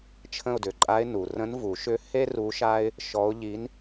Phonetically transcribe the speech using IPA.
t͡ʃʰ ə̃˦˨ ʊ̯ d ʏ˩ ǃʼ a˧˥ ɪ̯ n u˩ r ə̃˧˥ n v u˨˩˦ ʃ ʏ˧˥ h e˥ r u˧˥ ʃ a˥ ɪ̯ | ʃ ɔ˧˥ ʊ̯ ʎ i˧˥ n

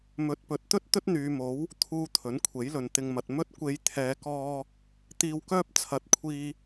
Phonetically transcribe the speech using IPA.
m ɵ˨˥ t̚ p ɵ˨˥ t̚ t̪ ɵ˥ t̚ t̪ ɵ˥ t̚ n̪ yː˨˧ m o˨˥ w | t̪ʰ uː˨ t̪ʰ ɵ˨˥ n kʷʰ e˨˥ j l ɵ˨ n t̪ ɪ˨ ŋ m ɐ˨ t̚ m ɵ˧ t̚ kʷ e˨˧ j t̪ʰ ɛː˨˧ k ɔː˧ | t̪ iː˨ w k œː˧ p̚ t͡sʰ ɐ˨˥ t̚ kʷʰ iː˧

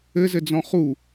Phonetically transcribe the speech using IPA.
ɘ z ɘ d͡z ɔ̃ χ u

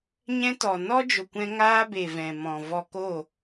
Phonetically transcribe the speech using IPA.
ɲ ɛ̃˦ t ɔ˨ n ɔ˦ d͡ʒ o˨ kʷ ɛ̃˧ ŋ aː˦ b e˨ v ɛ̃˨ m ɔ̃˨ v ɔ˨ k o˦˨

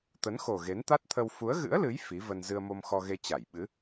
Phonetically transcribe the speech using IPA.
t̪ ə˨˦ n x o˨˩ ɣ e˨˦ n t̪ a˦˥ t̚ t̪ʰ ə˧ w f u˨˦ ə̯ ɣ ɨ̰˧˥ ə̯ l ɨ˨˦ j f i˨˦ v ə˧ n z ɨ˧ ə̯ m o˧ m x ɔ˧ ɣ e˧ t͡ɕ a˧˩ j ɓ ɨ˨˦

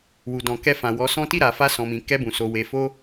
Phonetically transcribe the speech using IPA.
w u˨ d ɔ̃˨ k ɛ˧ f ã˨ w ɔ˨˦ s ɔ̃˦ t i˦˨ ɾ a˨ f a˧ s ɔ̃˨ m ĩ˨ k ɛ˧ b ũ˨ s o˨ w e˨ f o˧

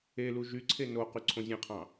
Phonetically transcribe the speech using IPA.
e l u ʒ y ǀʰ e n o q y ǀʰ õ zʲ ẽ qʰ ɑ̃

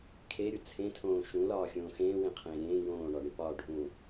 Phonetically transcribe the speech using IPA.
kʰ e ɾʲ u t͡sʰ ẽ tʰ õː ʃ ũ l ɒː xʲ õː x ẽː w ẽ qʰ ẽː ɾʲ ẽː j õː ɳ ɒ ɳ i p ɒː ɖʱ ũ

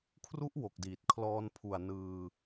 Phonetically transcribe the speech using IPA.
kʰ r u˦˥ ʔ w o˨˩ k̚ d iː˨˩ t̚ kʰ l ɔː˧ n pʰ u˨˩ a̯ n ɯː˧

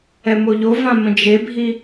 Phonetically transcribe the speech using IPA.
ɛ m o ʎ o v ã m ə̃ d͡ʒ e bʱ i

